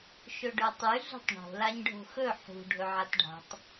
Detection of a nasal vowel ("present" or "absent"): absent